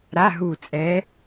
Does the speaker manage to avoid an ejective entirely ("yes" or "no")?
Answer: no